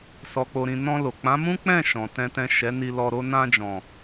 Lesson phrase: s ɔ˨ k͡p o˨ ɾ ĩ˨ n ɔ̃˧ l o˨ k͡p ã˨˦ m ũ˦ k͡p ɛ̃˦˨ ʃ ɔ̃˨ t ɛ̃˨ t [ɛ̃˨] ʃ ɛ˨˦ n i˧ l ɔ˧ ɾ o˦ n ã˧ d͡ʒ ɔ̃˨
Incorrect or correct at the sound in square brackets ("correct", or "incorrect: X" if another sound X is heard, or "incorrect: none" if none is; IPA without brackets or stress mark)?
correct